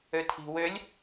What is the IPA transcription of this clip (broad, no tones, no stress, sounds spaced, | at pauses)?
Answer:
ø tʰ i̤ w ø lʲ